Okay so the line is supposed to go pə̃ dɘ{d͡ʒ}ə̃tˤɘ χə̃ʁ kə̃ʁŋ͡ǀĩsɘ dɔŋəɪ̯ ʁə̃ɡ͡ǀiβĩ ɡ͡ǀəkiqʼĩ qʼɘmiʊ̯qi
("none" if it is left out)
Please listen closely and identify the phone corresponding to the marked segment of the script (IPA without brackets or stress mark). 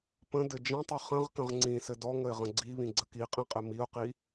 d͡ʒ